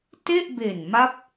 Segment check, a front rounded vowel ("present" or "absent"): absent